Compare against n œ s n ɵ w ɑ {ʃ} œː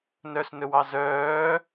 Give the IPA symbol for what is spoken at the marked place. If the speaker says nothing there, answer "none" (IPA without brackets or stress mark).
z